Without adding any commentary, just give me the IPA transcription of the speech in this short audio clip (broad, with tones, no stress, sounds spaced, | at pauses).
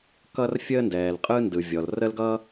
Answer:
k ʌ˥ r fʲ əː˥ n d ɛː˩ l qʼ ɯ˥ n d ɯ˩ vʲ ɔ˩ l r ə˥ l ɡ ʌː˥